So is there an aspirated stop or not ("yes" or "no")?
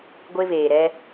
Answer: no